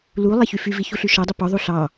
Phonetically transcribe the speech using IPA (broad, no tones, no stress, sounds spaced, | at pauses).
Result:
l u lˠ e ç y f y v i ç u ɬ y ʃ ɔ dˤ ɵ p ɔ ðˤ u ɬ ɑ